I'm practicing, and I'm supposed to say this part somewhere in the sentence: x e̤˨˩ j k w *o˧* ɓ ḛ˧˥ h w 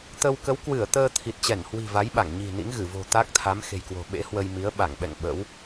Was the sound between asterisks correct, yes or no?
no